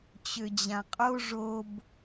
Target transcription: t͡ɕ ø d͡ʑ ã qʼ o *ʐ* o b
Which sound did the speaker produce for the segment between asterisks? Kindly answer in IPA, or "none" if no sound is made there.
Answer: ʐ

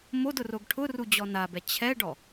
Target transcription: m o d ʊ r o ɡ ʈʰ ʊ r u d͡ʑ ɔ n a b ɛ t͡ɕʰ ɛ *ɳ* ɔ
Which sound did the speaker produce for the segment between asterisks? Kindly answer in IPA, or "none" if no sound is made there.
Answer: ɖ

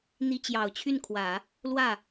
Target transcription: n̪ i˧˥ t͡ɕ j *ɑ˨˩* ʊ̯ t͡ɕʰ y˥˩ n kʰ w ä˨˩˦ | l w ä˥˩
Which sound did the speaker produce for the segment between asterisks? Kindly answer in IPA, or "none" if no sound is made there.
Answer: ɑ˨˩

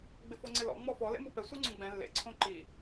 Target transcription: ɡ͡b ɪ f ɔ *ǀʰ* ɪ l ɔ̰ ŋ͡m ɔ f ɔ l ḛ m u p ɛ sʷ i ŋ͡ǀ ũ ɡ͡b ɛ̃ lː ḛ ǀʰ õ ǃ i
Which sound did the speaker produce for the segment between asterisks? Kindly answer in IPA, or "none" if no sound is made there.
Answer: ŋ͡ǀ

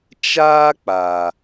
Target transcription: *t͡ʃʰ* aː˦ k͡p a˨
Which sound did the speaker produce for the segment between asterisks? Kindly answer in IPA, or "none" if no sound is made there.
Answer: t͡ʃ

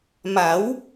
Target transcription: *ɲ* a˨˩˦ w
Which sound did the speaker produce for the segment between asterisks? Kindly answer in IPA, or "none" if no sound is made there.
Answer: m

